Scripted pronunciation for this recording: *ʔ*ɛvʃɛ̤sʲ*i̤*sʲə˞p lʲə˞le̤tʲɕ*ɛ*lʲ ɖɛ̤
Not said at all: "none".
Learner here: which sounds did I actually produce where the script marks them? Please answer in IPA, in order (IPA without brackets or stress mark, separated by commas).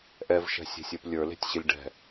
ʔ, e̤, ɪ